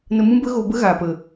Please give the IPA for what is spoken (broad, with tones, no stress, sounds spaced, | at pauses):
n ə˧ m ũ˦ b ə˦ ɣ o˧ b ə˦ ɣ aː˨ p ə˨